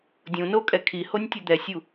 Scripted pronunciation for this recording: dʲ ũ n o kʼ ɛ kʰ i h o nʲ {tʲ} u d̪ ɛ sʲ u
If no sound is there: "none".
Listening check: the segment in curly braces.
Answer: tʲ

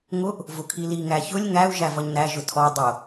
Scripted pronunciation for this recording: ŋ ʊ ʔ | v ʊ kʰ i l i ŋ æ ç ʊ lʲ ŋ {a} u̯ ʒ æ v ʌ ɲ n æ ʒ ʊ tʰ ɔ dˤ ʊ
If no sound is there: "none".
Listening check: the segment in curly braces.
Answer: æ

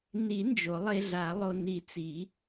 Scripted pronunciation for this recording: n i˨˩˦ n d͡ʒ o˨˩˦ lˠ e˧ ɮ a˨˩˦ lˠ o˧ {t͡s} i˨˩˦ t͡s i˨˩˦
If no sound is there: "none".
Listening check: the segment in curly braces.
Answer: n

